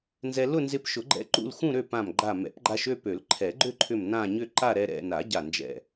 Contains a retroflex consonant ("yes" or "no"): no